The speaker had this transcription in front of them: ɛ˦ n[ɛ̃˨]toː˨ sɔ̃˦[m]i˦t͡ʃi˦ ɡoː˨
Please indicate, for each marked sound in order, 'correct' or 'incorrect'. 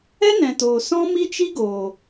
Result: correct, correct

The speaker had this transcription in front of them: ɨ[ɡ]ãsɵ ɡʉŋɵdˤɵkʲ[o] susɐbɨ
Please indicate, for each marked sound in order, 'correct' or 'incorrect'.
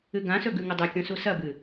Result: correct, incorrect: õ

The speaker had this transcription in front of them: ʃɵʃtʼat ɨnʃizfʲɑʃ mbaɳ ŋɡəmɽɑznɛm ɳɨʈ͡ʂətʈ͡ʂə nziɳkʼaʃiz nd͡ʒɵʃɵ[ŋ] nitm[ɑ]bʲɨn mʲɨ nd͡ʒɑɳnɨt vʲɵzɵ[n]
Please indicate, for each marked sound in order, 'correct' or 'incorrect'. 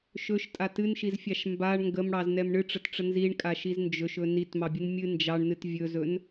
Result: incorrect: none, correct, correct

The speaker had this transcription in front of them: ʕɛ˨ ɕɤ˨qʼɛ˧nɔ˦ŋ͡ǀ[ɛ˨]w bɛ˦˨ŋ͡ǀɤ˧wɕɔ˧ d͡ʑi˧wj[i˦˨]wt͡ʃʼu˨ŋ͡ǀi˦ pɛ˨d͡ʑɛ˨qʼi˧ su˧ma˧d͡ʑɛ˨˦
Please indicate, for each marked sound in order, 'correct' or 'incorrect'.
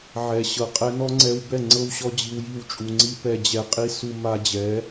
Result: incorrect: ɛ˧, correct

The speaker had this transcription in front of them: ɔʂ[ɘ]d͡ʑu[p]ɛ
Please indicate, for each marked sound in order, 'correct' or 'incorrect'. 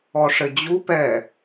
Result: correct, correct

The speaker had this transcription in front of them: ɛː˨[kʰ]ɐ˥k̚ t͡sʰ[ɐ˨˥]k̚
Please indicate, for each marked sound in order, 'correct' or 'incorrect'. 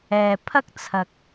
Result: incorrect: pʰ, incorrect: ɐ˨

